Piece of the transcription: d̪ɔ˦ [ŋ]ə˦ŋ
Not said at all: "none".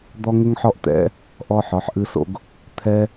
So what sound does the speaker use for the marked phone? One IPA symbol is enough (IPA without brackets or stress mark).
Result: ŋ